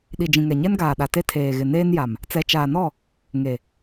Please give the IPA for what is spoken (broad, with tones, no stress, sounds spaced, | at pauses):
ɗ i˨ d͡ʒ ĩ˨ ŋ ɛ˨ ɲ ɛ˦ n ɡ aː˨ ɗ a˨ t e˦ tʰ eː˨ ɣ ɪ˨ n eː˦ n j a˨ m | t͡s ɛ˨ t͡ʃ aː˨ n ɔ˦˨ | ŋ e˨